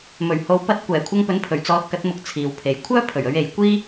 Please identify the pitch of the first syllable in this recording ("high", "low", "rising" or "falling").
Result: low